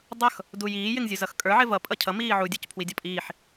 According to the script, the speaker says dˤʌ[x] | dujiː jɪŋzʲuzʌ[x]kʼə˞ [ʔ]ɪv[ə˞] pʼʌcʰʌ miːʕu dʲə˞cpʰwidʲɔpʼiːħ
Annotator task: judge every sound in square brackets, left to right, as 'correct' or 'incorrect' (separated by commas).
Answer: correct, correct, incorrect, incorrect